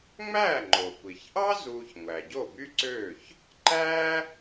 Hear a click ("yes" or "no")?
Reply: yes